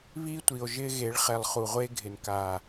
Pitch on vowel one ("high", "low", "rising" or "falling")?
high